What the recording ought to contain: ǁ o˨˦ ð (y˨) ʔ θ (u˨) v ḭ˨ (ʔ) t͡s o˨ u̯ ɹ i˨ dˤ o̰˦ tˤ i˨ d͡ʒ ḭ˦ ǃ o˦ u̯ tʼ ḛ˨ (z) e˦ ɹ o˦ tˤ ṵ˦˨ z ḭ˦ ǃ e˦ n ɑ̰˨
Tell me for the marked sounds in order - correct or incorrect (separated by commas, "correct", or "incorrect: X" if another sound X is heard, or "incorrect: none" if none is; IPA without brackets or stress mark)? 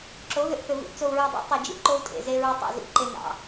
incorrect: ʏ˨, incorrect: ʏ˨, correct, correct